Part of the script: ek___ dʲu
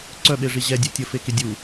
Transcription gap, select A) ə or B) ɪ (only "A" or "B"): B